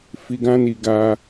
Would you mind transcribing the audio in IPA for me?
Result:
f i˧ ɡ ã˦ n i˧ ɡ a˦

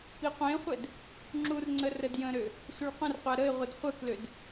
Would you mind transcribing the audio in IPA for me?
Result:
p i qʷ ẽ χʷ ɛ d | ŋ͡ǁ u r ŋ͡ǀ ə r ə d j ə̃ ɾ ø | sʷ ə ɭ qʷ ə̃ r qʷ a ɾ ə ɪ̯ ʁʷ ə d χʷ ə k l ø d

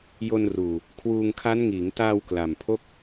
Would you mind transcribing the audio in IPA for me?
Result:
j o˧ n r uː˨˩ | kʰ w uː˧ ŋ kʰ a˦˥ n ŋ iː˩˦ ŋ t aː˧ w k l a˨˩ m pʰ o˥˩ k̚

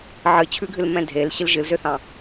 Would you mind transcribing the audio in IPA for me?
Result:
ʕ ɨ t͡ɕʰ ʉ ɡʱ ɨ l m ɛ̃ dʱ e l ɕ ɨ l ʒ ɨ l z ø θ ɑ̃

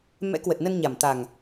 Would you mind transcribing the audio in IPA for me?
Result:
m ɛ̰˧˥ k w ə˨˩ t̚ n ə˧ n ɲ a˨˩ m t̪ a˨˩ ŋ

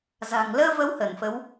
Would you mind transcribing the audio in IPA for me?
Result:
z a̤˨˩ ŋ l əː˧ v ə˨˦ w h ə˧˩ n f ə˨˦ w

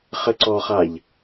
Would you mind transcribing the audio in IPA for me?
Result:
χ ɘ ǀ ɔ χ a ʎ

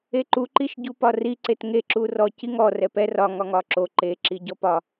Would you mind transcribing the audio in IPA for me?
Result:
e ǃ u ǃ i ʃ ɟ u p ɒ r i ǀ e t ŋ e ǁ u r ɔ c i ŋ ɔ r ɛ p ɛ r ɒ ŋ ɒ ŋ ɒ ǁ o ǃ e ǁ i ɟ ɔ p ɒ

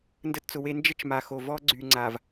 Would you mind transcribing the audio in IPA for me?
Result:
n d ə˦ t t͡s ʊ˨ w e˦ n d͡ʒ ə˦ t͡ʃ m a˨ x o˨ v ɔ˦ ɡ͡ǀ y˨ ŋ͡ǀ a˨ v

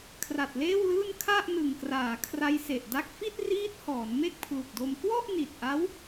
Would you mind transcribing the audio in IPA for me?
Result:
kʰ r a˨˩ t̚ l eː˥˩ w l ɯː˥˩ n kʰ a˥˩ ʔ n ɯ˨˩ ŋ k r aː˩˦ kʰ r a˦˥ j s e˨˩ ʔ d a˥˩ k̚ f i˥˩ t̚ r iː˦˥ t̚ h ɔː˩˦ n m e˥˩ k̚ pʰ l u˨˩ k̚ d o˧ m k w ɔ˥˩ ʔ n i˨˩ t̚ ʔ a˦˥ w

